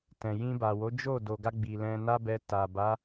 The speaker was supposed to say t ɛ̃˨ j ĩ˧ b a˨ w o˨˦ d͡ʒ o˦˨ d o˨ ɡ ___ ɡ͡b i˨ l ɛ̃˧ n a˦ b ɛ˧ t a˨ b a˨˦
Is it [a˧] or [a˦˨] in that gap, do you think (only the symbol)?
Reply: a˧